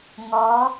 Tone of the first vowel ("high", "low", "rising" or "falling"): rising